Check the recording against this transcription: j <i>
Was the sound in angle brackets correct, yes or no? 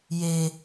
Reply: no